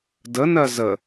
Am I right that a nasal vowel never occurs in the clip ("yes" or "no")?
yes